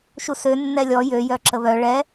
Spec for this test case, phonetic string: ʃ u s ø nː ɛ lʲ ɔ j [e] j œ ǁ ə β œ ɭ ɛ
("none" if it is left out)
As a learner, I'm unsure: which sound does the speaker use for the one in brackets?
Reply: ø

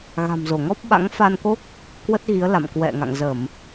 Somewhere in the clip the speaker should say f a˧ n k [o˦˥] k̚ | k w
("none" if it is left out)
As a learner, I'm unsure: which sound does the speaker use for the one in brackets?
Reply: o˦˥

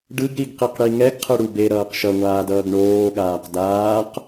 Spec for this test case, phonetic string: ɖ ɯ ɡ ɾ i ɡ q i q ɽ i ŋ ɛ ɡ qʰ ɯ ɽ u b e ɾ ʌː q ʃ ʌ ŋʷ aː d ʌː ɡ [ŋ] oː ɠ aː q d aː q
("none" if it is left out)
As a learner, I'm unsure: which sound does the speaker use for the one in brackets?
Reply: ɳ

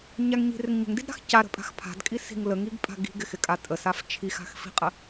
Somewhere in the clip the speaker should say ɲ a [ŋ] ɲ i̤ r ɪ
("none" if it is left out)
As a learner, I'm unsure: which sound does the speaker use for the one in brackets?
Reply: ŋ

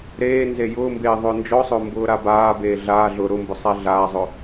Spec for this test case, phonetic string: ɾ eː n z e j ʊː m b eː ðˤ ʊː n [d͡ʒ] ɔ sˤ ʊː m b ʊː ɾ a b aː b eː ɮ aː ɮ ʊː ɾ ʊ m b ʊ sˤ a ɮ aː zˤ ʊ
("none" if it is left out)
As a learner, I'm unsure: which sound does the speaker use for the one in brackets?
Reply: d͡ʒ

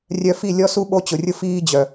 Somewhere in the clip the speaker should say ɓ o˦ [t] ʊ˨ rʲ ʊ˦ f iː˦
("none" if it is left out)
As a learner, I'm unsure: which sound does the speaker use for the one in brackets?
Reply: t͡ɕ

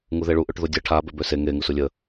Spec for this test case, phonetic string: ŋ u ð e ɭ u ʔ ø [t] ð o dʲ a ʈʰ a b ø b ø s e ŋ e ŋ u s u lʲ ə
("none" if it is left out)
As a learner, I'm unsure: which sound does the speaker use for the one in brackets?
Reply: ʈ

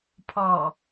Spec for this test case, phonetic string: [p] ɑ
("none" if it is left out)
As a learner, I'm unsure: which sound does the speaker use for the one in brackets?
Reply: pʰ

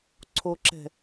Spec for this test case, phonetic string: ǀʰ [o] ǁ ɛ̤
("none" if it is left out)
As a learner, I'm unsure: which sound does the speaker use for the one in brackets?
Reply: o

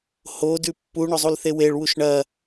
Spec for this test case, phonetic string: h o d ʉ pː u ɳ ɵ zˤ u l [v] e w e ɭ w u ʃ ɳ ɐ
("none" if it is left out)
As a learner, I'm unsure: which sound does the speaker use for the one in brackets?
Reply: θ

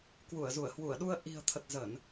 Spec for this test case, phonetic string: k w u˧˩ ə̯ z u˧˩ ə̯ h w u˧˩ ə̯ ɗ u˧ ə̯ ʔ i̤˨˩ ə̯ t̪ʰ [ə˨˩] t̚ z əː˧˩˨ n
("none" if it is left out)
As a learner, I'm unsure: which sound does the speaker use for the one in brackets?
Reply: ə˨˩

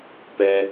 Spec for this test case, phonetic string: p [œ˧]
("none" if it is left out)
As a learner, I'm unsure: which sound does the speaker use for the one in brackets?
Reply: ɛ˧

